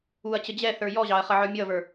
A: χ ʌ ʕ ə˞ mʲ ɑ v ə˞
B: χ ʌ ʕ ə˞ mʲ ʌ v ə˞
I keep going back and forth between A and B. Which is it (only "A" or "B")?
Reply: B